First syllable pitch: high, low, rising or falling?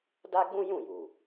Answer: high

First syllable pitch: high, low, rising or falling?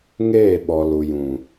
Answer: falling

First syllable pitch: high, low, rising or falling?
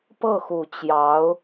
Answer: falling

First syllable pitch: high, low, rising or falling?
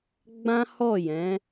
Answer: high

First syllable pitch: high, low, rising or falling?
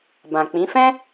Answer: low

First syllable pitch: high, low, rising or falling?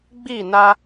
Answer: falling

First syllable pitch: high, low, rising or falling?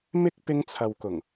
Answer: high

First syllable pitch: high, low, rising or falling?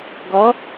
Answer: rising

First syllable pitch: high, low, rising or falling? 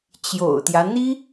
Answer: low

